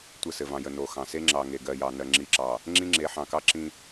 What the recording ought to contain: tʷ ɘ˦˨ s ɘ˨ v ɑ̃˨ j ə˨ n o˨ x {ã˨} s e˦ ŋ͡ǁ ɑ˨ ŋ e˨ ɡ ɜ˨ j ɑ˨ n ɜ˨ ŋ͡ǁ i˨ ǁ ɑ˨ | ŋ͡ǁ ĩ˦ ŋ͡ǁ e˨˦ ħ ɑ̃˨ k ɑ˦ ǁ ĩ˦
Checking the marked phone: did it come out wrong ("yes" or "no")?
yes